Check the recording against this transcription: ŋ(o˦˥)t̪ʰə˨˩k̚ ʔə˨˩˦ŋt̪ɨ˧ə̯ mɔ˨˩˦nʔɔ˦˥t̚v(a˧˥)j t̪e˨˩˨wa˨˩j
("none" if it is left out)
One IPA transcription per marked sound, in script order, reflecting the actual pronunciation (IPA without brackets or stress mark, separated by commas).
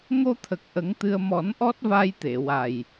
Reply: o˧, a˧